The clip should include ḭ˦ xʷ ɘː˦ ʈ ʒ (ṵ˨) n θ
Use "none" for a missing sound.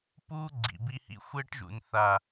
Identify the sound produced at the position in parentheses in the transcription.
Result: ṵ˨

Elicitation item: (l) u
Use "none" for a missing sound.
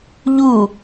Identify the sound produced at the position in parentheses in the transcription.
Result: ʎ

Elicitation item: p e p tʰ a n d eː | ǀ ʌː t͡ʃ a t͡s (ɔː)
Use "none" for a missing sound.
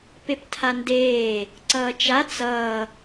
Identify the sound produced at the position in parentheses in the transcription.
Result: ʌː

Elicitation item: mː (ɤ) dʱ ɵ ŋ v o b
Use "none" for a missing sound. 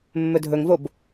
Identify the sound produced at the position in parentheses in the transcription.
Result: ɵ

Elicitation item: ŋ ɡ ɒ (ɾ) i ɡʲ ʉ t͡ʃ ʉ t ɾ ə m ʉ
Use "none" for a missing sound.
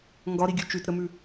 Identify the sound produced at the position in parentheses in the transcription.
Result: ɾ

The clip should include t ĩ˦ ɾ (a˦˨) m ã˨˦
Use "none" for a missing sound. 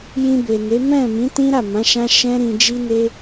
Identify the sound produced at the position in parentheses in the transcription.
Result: a˦˨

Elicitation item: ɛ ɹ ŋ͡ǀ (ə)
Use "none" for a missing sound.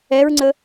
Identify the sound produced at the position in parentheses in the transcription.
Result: ə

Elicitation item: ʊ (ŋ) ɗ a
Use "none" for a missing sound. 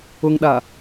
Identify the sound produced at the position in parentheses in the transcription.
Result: ŋ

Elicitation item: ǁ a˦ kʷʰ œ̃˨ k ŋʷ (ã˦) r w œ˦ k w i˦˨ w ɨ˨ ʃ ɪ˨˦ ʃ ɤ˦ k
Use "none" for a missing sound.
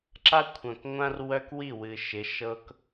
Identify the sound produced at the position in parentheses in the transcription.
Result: ã˦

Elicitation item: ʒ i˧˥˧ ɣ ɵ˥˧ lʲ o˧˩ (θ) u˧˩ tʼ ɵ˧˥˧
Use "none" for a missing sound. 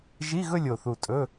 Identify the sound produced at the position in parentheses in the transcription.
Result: θ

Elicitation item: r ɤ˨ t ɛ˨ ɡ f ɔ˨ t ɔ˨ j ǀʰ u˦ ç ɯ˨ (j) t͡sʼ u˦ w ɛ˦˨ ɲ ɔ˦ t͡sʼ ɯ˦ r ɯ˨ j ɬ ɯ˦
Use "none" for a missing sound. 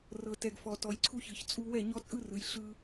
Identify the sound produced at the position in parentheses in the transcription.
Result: ç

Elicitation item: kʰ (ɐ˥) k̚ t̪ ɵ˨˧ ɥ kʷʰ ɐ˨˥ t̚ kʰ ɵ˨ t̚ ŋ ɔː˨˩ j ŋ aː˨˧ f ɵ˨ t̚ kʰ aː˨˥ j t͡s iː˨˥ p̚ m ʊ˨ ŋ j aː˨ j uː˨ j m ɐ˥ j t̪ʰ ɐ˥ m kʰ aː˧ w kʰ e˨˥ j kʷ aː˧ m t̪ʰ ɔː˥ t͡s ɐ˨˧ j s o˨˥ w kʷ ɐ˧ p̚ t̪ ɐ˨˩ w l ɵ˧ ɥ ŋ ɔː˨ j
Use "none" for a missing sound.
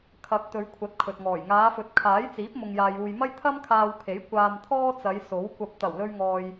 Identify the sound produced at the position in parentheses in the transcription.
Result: ɐ˨˥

